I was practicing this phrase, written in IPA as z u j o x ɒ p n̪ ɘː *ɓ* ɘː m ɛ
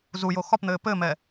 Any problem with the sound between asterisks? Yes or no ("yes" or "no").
yes